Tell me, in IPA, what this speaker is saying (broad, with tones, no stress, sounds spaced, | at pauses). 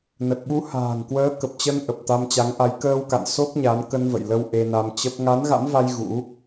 n ə˨˩ t̚ ɓ u˨˦ h a̤ː˨˩ ŋ k w əː˨˦ k ə˨˩ p̚ t͡ɕ ə˧ n ʔ ə˨˩ p̚ t̪ a˧ m t͡ɕ a˨˦ ŋ ʔ a˨˦ j k əː˧ w k a̰˧˨ n s o˦˥ k̚ ɲ a˨˦ n k ə˧ n v ə̰˧˨ j l ə˧ w ʔ e˧ n a˧ m t͡ɕ ə˦˥ p̚ ŋ a˨˦ n ɣ a̰˧˥ m v a˧ j ɣ ṵ˧˥